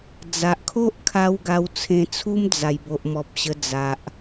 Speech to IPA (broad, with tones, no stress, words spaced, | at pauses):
d͡za˨ʔkʰo˦ʔkʰa˧w ɡa˧wt͡sʰẽ˧t͡sʰu˦m d͡za˨˩jbo˨ʔmɔ˨p̚ ɕə˧d͡za˨ʔ